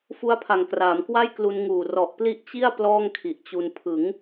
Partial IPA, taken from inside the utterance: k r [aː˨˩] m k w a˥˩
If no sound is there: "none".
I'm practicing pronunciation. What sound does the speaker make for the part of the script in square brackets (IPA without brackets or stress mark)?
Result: aː˩˦